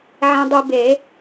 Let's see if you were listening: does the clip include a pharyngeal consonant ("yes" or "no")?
yes